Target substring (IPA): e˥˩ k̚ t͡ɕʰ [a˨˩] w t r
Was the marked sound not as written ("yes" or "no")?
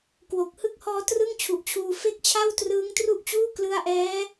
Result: yes